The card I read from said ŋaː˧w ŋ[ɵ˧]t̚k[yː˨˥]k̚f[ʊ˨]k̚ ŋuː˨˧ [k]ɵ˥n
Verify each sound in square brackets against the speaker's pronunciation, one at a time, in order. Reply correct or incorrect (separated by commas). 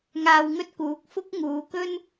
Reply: incorrect, incorrect, incorrect, correct